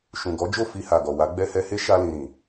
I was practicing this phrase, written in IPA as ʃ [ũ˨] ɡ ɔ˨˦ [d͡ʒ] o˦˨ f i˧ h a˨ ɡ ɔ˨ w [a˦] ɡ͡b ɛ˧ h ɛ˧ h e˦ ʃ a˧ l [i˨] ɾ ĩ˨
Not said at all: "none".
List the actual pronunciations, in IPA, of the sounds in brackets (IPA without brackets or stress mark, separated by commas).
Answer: ũ˨, d͡ʒ, a˨˦, ĩ˨